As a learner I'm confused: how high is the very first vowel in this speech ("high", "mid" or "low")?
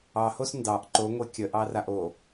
low